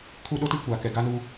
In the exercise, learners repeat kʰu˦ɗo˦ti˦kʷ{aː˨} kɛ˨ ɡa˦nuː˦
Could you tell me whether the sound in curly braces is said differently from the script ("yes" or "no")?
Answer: no